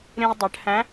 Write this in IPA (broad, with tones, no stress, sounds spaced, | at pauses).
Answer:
ɾ ĩ˧ ʊ̯ dˤ ɛ˩˧ ʈ h æ̃˧˥